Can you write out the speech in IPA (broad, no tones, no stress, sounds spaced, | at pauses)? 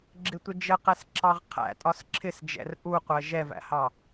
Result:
ɡ͡ǁ ɪ tʷ ɪ d͡ʒ ə q ɛ s ǁ ɑ ʁ qʰ æ̰ tʼ ɒ s ǁʰ ɪ s d͡ʒ ɛ̰ r ʔ u qʷ ɜ ʒ ɛ v æ̰ h ɑ